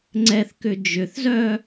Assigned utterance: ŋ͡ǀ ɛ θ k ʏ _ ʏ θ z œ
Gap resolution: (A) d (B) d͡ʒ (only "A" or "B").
B